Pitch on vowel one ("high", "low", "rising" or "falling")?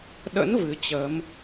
rising